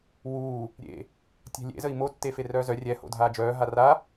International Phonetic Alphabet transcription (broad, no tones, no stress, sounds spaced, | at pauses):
w uː | ɾʲ ḛ | tʲ ɛ̤ lʲ ḛ z ə i̯ m o tː e f e r œː z œ rʲ ɛ h o̰ dʱ aː d͡ʒ œː ɦ a r a